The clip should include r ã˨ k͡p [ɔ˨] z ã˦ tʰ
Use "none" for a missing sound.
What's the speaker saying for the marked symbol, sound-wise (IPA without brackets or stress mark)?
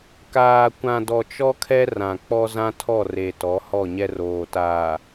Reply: ɔ˦